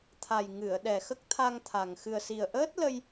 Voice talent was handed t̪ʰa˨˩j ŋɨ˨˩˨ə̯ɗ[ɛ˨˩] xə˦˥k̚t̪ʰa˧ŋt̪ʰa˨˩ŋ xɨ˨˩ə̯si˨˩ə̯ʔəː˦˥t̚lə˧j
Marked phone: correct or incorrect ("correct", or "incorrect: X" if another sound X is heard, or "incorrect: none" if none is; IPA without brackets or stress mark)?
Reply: correct